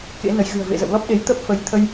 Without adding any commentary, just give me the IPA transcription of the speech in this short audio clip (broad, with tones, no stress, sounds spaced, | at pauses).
k ḛ˧˥ n ə˨˦ j ɣ ɨ̤˨˩ ə̯ v ḛ˧˨ z ə̰˧˨ w l ɔ˦˥ p̚ ɗ e˨˦ j t̪ ə˦˥ p̚ f ə˨˦ j t̪ʰ ə˧ j